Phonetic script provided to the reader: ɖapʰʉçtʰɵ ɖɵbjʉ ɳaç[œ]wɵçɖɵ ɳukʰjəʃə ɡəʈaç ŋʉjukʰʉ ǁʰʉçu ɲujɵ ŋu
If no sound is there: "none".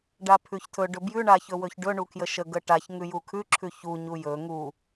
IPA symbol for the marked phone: ɵ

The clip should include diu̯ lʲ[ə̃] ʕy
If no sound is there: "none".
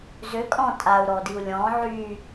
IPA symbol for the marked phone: ɔ̃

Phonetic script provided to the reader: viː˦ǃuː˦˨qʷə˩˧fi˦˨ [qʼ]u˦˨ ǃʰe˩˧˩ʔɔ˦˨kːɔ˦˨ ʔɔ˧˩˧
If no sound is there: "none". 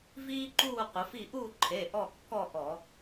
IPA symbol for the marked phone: ʔ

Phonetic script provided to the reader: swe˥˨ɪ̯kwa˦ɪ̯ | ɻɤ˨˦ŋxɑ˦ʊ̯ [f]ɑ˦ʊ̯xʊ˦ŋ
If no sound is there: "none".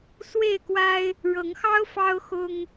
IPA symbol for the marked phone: f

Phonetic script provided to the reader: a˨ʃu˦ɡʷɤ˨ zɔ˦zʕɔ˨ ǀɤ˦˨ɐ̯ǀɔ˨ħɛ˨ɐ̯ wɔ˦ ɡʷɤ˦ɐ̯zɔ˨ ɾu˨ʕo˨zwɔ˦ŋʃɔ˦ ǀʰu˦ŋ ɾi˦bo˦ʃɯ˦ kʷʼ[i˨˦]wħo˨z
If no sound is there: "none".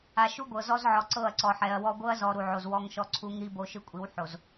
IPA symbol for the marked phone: i˨˦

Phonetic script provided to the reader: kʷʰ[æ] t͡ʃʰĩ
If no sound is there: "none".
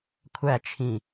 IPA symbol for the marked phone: æ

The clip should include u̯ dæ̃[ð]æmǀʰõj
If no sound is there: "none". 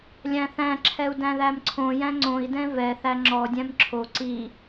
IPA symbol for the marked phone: ð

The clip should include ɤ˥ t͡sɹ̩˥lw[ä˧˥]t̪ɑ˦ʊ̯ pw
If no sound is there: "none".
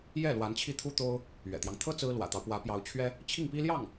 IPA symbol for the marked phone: ä̰˨˩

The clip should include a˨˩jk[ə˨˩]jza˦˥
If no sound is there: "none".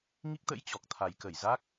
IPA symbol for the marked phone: ə˧˩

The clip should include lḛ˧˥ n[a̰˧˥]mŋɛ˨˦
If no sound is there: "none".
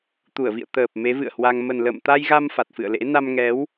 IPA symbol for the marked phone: a˧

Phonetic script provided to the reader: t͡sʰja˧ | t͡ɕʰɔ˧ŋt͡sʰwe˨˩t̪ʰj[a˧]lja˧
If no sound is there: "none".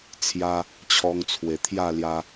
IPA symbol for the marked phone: a˥˧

